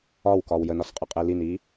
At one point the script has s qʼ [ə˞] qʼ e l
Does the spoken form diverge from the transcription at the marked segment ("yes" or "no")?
yes